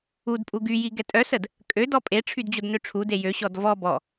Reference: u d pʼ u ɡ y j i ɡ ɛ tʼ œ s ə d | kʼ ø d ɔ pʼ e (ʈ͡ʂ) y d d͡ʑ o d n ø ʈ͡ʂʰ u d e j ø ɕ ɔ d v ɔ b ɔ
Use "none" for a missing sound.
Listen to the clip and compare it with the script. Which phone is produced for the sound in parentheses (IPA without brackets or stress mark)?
ʈ͡ʂʰ